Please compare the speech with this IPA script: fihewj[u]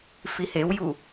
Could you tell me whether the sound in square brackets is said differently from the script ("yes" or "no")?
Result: no